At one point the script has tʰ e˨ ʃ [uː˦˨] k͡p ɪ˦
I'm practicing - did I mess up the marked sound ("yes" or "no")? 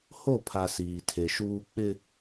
yes